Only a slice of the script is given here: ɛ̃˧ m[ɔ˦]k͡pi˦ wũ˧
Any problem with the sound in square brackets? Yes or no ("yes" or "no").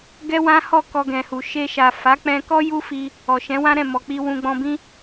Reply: yes